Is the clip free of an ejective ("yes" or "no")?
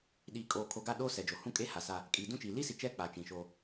no